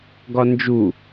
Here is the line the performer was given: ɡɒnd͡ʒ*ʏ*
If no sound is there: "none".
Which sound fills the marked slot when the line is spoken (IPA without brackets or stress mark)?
u